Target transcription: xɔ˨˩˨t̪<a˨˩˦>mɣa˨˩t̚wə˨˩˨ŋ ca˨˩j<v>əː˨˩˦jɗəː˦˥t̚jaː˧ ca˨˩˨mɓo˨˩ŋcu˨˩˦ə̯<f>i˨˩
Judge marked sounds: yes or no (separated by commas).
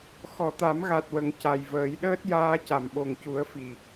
yes, yes, yes